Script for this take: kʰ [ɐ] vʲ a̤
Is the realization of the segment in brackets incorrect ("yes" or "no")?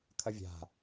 no